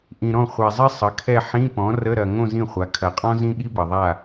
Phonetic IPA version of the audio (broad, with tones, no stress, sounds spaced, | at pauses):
ʔ ĩ˨ ɾ ɔ̃˥˩ χʷ ɛ˨ zˤ i˥ sˤ ə˩˥ kʰ ɛ˥˧ ħ ĩ˧˥˧ p ɔ̃˩˥ r ə˧˥˧ ɾ ɐ˨ ŋ õ˥˧ z ĩ˥˩ χʷ a˩˥ kʰ ɐ˨ qʼ ɔ̃˥ z ĩ˥ ɠ i˥ b ɐ˨ ðˤ a˥˩